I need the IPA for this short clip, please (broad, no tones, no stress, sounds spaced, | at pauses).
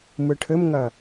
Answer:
m ɯ ʈʰ ɘ m ŋ ɐ